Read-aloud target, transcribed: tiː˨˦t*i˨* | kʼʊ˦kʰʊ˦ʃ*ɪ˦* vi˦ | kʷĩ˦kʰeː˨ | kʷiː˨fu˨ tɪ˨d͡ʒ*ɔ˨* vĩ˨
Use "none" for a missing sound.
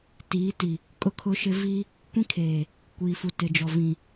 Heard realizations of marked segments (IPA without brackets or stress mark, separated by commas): i˨, ɪ˦, ɔ˨